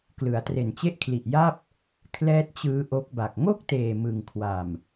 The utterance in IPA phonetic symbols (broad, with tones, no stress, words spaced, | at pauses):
klɯ˩˦a̯tre˨˩nt͡ɕe˦˥ʔkʰli˨˩ʔ ja˥˩p̚ | kʰlɛː˦˥t̚t͡ɕɯː˦˥ʔo˦˥k̚ba˨˩k̚ ŋo˥˩k̚teː˨˩ mɯ˨˩ŋkʰwa˨˩m